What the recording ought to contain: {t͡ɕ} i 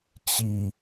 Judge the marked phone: correct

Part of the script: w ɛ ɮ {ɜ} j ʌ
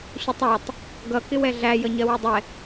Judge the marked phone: incorrect: æ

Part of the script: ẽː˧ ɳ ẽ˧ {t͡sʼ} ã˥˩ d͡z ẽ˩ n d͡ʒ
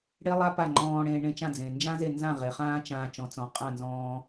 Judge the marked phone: incorrect: t͡ʃ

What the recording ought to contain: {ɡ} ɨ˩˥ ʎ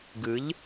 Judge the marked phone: correct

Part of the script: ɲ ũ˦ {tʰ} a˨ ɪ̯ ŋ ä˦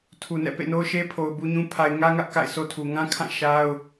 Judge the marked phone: incorrect: pʰ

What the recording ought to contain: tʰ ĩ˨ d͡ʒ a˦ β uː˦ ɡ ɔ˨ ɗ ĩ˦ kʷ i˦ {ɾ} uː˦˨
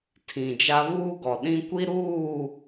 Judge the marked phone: correct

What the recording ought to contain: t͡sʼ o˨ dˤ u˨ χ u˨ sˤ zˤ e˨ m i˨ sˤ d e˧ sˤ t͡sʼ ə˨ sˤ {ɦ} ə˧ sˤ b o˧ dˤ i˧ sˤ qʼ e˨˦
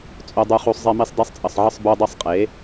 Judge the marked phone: incorrect: ʕ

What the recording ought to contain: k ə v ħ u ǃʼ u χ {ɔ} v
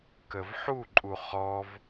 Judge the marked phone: correct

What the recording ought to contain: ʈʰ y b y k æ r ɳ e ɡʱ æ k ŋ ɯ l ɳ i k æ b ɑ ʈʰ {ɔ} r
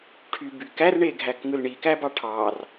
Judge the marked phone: incorrect: ɑ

